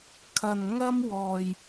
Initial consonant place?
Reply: velar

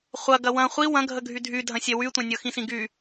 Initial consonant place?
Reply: uvular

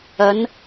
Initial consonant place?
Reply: alveolar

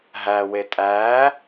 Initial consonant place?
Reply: glottal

